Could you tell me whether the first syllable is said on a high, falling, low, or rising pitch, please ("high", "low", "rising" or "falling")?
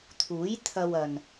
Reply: rising